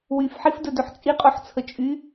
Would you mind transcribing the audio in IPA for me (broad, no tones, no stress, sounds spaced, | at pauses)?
w y f ħ i f d ɵ d ɵ ħ t͡sʼ i qʼ o ħ t͡sʰ ə t͡ʃʼ y